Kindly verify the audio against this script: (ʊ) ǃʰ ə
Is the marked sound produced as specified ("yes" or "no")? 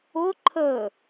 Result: yes